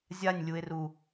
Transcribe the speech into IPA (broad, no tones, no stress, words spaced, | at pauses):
zʲanʲlʲue̯ru